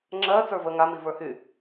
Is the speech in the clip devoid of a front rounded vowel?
no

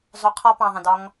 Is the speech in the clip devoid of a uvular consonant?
no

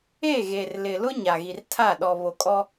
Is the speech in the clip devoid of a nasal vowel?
yes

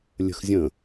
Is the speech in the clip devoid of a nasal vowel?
no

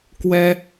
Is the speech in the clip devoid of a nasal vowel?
yes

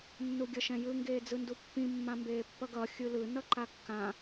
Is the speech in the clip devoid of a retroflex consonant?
yes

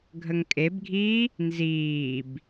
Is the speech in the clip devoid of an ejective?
no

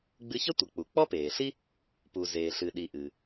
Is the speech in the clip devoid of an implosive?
no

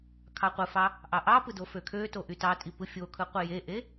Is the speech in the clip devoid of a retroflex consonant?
yes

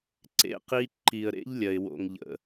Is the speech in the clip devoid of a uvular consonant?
no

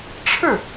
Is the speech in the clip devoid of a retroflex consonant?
no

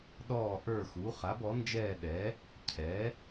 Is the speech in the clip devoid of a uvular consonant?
no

